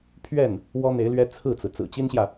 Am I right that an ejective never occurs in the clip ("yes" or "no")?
yes